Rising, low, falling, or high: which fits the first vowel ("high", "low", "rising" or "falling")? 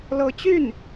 rising